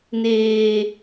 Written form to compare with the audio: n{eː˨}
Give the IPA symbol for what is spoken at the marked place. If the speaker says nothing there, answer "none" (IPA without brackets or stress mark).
eː˨